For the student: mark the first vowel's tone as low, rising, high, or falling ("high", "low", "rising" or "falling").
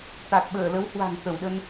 low